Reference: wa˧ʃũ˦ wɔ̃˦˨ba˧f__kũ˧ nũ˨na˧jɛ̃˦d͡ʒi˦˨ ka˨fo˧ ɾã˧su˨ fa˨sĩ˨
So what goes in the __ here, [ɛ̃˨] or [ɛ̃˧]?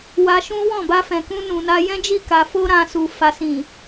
ɛ̃˨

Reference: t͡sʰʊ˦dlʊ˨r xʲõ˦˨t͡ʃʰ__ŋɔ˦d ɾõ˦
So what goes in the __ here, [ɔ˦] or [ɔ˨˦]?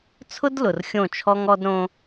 ɔ˦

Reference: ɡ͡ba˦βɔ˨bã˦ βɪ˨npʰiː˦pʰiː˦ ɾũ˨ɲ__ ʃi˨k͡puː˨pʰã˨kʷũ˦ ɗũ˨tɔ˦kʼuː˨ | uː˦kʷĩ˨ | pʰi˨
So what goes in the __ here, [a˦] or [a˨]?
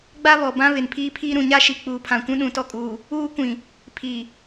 a˦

